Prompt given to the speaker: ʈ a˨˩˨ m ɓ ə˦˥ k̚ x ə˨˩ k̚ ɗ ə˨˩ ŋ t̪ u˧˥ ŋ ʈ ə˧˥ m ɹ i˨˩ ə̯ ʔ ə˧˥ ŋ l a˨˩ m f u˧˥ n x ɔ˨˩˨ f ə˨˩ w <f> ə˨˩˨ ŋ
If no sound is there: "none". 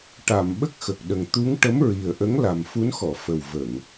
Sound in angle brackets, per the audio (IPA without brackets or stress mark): v